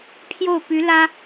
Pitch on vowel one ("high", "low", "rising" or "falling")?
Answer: falling